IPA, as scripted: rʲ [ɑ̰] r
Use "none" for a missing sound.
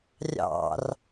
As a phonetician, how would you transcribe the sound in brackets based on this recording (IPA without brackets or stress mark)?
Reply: ɑ̰